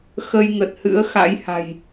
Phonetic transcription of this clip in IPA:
x ə˧ j ŋ ə˨˩ t̚ h ɨ̰˧˥ ə̯ x a̰˧˥ j h a̤˨˩ j

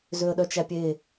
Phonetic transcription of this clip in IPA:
z ø ə̯ ɗ œ t͡ʃ æ pʲ e

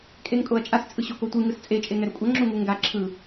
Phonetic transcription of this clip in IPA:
kʼ e ŋ kʼ o ɐ̯ t͡ʃʼ a s t͡sʼ ɯ ɕ o k o tʷ ɯ ŋ ɯ s t͡sʼ e t͡ʃʼ e ŋ ɛ ɾ u kʷʼ ʌ ŋ͡ǁ u ŋ u ŋ ɡ a ǁʰ ɯ

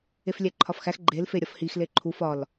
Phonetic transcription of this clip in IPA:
e f lʲ æ ǃʰ ɒ f x æ x ɡ͡ǃ e l f e ɾʲ ɒ f h i x l e ǃʰ u f ɒ l

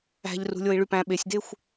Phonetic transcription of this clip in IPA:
æ̤ ʎ r ṳ lʲ o i̯ ɭ y p æ̃ ɓ e sʲ d e xʷ

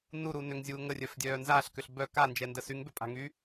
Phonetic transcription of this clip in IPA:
n u ɾ u n ʏ ŋ zʲ uː ŋ ə rʲ œ f dʲ œː n z a ɬ k ʏ ɬ b œ k a n d͡ʒ ɛ n d ə s y ŋ b ø pʼ a̤ ŋ y

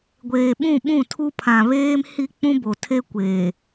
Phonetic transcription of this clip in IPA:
ɡʷ eː˨ ɓ ũ˦˨ ɓ ũ˦˨ tʰ u˦ pʰ ã˨ β eː˦ m h i˦ k͡p ũ˦ b o˨ tʰ e˦ kʷ e˨

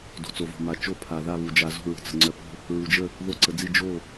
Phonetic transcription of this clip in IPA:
d o̤˩ t͡s o˩ v o̤˩ m a˩ t͡ʃ o˧˩ pʰ a˩ ð a˧˩ β u˩ d͡ʒ a˩ z o̤˧˩ ɹ ə̤˩ t͡s ə̤˩ ŋ͡ǀ œ˩ p ə̤˧˩ | ɹ u˩ d͡ʒ ə˧˩ | ð o˧˩ ǀ ə˩ d͡z i˧˩ d͡ʒ o˧˩

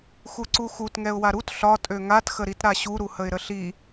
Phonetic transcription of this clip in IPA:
x u ǀ u x u t ŋ ɛ ʊ̯ w a ɾ u t ɬ ɒ tʼ ø ŋ a t x ə ɾ i t ɾ a ɕ u ɾ u h ə ɪ̯ ɾ ə ɬ i

